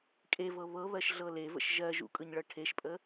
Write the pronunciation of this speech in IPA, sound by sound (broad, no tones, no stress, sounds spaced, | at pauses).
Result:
kʼ e v ɤ β ɤ β ɜ ʃ ɮ ɤ l e v ə̰ ʃ ʒ ɜ ʒ ṵ kʼ ɯ ɲ ɭ ɤ ʈʰ e ʃ pʼ ə